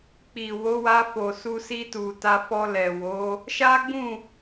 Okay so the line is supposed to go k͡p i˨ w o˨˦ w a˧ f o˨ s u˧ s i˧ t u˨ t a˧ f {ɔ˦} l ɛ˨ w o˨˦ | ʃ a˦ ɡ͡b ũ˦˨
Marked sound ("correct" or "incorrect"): incorrect